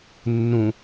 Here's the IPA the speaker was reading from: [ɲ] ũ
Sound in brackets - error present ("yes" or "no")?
yes